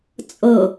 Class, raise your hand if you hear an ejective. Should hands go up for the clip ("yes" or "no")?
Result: yes